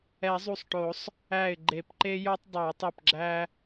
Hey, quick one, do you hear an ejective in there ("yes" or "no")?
no